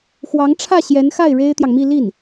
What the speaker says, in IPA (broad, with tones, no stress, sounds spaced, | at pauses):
x w ɑ˧˥ ŋ ʈ͡ʂʰ ä˥˩ ɕ j ɛ˧˥ n x a˥˩ ɪ̯ ɻ e˥ ɪ̯ t̪ j ɑ˨ ŋ m i˥˧ l i˥˩ n